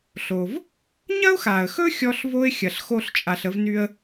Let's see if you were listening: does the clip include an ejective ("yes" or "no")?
yes